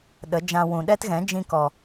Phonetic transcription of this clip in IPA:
ɗə˨˦d͡ʒã˧ wũ˨ ɗɛ˦tɣɛ̃˨˦ d͡ʒĩ˧kɔ˨

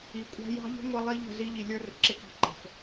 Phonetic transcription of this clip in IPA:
i˨kʷʼæ̤˦ jɑ̤˦ʎə̤˦ ŋʷə˦lˠi˦ʎə̤˦˨ zi˦ʎi˨lʲə˞˦ rə̤˨ǁɪ˦kɑ̤˦ ǃə̤˨f

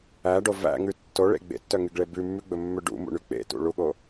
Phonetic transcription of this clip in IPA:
æɖo væ̰ŋʉ tːoɭḛ ɡ͡bḛtːœŋyɡɭe bʉmːʉɡ͡bɵmːø ɖṵmṵɳy k͡pḛtṵɭuɠo

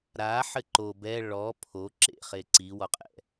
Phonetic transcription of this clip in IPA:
ɾaħɘ ǃo bɛ ɭɔ pʰo ǁḛχe ǀiwɔqʼɛ̰

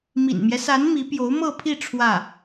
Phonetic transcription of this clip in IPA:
mḭ˨˩nmjɛ˦sa˧˥n mi˧˥pjo˧˥ʊ̯mɤ˥˧pʰi˥˧ ʈ͡ʂʰwä˥˩

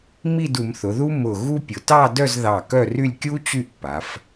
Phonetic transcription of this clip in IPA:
mi˥˧du˩˧mθʊ˩˧ ðu˥mʊ˧˩ ɣu˥pʲʊ˩˧ tɑ˥˧dœ˥˧zðɑ˧˩ kœ˥˧ry˥˧lʲkʲu˥ t͡ɕy˥ʔ pːa˩˧f

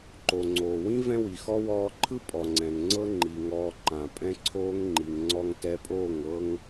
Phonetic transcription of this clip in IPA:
ǃo˨ŋ͡ǀoː˨ wĩ˦ vɛ̃˦wi˨xɔ˦ wɔː˧ǃʰɯ˦ pʼɔ˨ŋ͡ǀɛ̃˨ŋ ŋ͡ǀɤ˦ŋ͡ǃi˨ ŋɔː˧ ǃã˨ pʼɛ̃˦ ǀʰoː˦ŋŋ͡ǃi˨ŋ ŋ͡ǀɔ˧ŋtɛ˧pʼoː˦˨ŋ ɤ˦ŋ

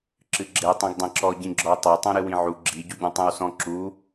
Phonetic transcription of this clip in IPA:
ǁɨɡ͡ǁe tˤĩɡdˤẽǁɔ ɟĩɡ͡ǁɔ tˤe tˤõɾɨwĩʕu ɡ͡ǁi ɟuɟõtˤẽwsɔ̃ ǁu

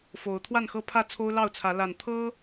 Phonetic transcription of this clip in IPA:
fo˨˦ʊ̯ t̪ʰwa˥˨nxɤ˦pʰä˥˨ t͡sʰo˦ʊ̯lɑ˥˨ʊ̯t͡sʰä˨˦ la˨˩n t̪ʰɤ˦

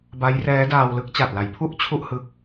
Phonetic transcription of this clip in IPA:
ba˦˥jrɛː˦˥ daː˧wlɯ˥˩k̚ t͡ɕa˨˩t̚la˩˦j pʰu˥˩ʔ t͡ɕʰu˥˩ʔhɯ˦˥k̚

